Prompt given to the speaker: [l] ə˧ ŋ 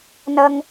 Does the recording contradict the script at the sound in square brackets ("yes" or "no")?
yes